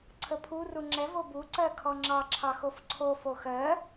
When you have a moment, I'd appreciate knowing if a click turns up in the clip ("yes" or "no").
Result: yes